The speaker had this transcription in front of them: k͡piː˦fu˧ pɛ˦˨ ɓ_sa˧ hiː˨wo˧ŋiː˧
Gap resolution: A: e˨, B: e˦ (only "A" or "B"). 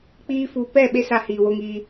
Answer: B